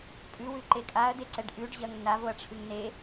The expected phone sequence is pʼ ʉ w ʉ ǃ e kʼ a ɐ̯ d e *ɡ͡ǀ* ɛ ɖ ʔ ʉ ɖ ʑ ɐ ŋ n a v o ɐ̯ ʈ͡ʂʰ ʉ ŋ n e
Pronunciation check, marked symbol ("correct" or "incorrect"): incorrect